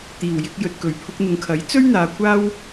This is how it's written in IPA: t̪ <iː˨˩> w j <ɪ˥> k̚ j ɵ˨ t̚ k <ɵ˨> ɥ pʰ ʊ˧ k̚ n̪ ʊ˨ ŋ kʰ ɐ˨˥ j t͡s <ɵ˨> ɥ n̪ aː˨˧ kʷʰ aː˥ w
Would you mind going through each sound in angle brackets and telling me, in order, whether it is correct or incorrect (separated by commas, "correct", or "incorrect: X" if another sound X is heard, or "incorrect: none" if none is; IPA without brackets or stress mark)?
correct, incorrect: ɪ˧, incorrect: ɵ˨˩, incorrect: ɵ˥